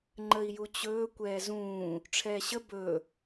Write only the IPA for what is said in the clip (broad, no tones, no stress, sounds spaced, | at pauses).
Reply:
ŋ͡ǃ ə i̯ j u t͡ɕ ɵː kʷ ɛː z ũː | ʈ͡ʂʰ ɛː ɕ ə b ɵ